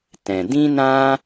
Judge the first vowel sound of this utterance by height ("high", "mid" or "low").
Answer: mid